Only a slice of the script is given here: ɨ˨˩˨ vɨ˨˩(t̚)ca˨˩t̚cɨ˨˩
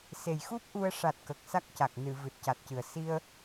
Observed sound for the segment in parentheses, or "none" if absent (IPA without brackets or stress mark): t̚